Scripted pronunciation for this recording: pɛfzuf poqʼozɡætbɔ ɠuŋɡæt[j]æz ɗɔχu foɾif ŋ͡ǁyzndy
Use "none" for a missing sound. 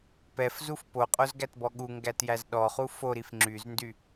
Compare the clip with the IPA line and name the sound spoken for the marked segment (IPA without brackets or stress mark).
j